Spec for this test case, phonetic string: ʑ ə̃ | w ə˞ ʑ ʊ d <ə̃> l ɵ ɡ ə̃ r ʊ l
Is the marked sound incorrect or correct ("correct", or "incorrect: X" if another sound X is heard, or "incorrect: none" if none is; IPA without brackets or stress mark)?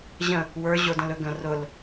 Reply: correct